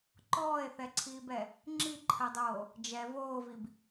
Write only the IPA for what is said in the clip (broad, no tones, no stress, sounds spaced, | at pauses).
ǃ ɔː e̯ θ ɛ ǀʰ iː b ɛ | ŋ͡ǁ i ǃʰ ɜ dˤ oː | d͡ʒ ɛ v oː v i b